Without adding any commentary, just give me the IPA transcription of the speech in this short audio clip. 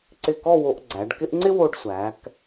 ǀɪ˧˩kɔ˥˧ wo˧ʔ ɡ͡ǀæ˩˧ɖ kɪ˥ʔ ŋ͡ǀɪ˥wo˧ɖsʷæ˩˧k

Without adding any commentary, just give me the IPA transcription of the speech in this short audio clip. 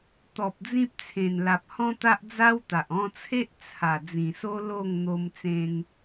t̪ɔ˨p̚ d͡zĩ˦p̚ t͡sʰẽ˨˩nla˨p̚ hɔ̃˦t̪a˦ʔd͡za˦wt̪a˨ʔ ɔ̃˧t͡sʰe˦ʔ t͡sʰa˨˩ d͡zĩ˨˩so˦ lo˥˧ŋ n̪o˧mt͡sẽ˧ŋ

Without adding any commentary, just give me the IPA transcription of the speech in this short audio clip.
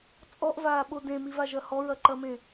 t͡sʼɔʔvaːɓo dẽmivaʒɐ hɔɹɐǃɐmẽ

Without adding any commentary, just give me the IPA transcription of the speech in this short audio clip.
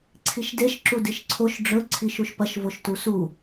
ǀʰiʃdeʃ ǁudiʃǀʰoʃ ɖ͡ʐɵ ǀʰiʃuʃpɐʃ voʃtusu

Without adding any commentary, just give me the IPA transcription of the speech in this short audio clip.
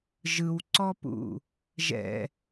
ʒɯwǀɔpṵ | ʒɛ̰

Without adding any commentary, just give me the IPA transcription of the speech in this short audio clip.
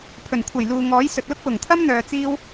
pʰɵ˨˩nkʷʰɐ˨˩j luː˨ ŋɔː˨˥jsɵ˨t̚lʊ˥k̚wʊ˨˩ŋ t̪ʰɐ˥mn̪œː˨t͡siː˧w

